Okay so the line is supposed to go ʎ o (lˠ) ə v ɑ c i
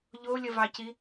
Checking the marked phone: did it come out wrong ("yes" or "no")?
yes